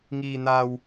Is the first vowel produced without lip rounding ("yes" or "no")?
yes